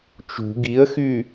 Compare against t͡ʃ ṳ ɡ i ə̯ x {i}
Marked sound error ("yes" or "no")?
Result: yes